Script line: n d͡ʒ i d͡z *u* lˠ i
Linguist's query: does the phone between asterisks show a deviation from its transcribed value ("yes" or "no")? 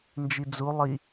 no